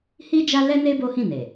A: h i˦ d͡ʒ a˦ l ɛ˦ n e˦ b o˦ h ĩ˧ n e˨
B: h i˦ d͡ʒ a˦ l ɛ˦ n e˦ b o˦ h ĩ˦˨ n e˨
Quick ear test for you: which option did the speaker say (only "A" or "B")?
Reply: B